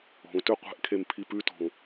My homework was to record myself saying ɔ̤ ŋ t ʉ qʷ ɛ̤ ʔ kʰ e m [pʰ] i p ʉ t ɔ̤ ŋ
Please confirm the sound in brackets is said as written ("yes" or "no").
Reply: yes